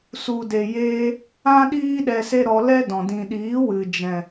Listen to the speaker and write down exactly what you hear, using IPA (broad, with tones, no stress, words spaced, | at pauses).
su˨de˨jeː˧ | ã˦ ɗiː˦ ɗɛ˧se˦ɾɔ˧ lɛ˦dɔ̃˨ dĩ˨ɗiː˨˦wɨ˨ d͡ʒɛ̃˨